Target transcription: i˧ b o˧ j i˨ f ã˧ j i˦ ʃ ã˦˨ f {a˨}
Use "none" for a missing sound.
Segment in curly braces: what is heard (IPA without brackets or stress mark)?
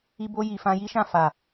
a˨